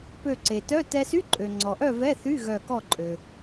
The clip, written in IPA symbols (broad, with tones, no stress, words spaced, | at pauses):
pø˧˩ǀe˩tœ˧˥˧ tɛ˧sy˧˥˧ ǃʼø˩ŋ͡ǀɔ˩ʔœ˥˨ vɛ˧˥˧θy˧˥˧ ɣœ˧˩kɔ˥˨ǃʼø˩